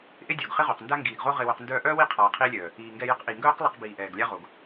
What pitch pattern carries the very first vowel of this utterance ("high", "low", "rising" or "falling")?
high